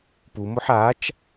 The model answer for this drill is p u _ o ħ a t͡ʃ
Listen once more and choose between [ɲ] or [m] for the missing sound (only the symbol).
m